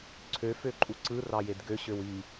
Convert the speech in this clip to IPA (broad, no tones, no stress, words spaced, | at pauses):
ǀʰø føǃʼuǀɯ rɑjedɡø ɕøwi